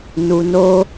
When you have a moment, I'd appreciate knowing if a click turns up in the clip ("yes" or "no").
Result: no